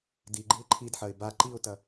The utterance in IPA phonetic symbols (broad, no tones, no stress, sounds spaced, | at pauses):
d i ɡ͡ǃ ɨ ɪ̯ ǃʰ i d ħ ɐ ɪ̯ b a ǃ i ʊ̯ t ɐ